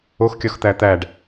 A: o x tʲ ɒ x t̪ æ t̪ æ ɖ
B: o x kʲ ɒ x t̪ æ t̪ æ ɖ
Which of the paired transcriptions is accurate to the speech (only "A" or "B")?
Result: B